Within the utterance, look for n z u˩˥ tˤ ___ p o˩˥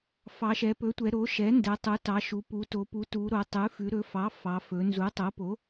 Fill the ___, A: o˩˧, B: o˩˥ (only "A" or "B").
B